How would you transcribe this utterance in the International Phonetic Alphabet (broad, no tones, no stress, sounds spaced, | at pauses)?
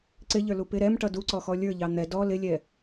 ǀ ɪ ʎ ə˞ l u p ɪ ɾ ɛ m ʈ ʌ d u ǀ ɔ x ɔ lʲ ə˞ ʎ ɑ n̪ ɛ d ɔ l ɪ lʲ ɛ